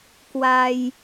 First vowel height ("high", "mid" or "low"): low